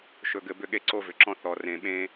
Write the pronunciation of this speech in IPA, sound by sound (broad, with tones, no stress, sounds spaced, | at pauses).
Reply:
ʃ ɵ˨ ɡ ɘ˨ b ʏ˦˨ ɠ e˦ ǀ o˦ v ʏ˨ ǁ ɔ̃˦ θ ɔ˨ r ẽ˨ ɓ ẽ˦